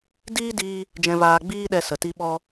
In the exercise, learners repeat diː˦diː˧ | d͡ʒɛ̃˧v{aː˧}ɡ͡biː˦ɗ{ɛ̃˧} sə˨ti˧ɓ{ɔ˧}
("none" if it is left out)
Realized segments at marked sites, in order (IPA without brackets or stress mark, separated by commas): aː˧, ɛ˧, ɔ˧